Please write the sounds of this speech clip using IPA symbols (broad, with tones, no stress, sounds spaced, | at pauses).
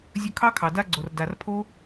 zʲ ɵ˧ kʰ ɑ˦ kʰ ɑ˨ d a˦ ɡ͡ǀ o˨ r d a˨ r pʰ o˦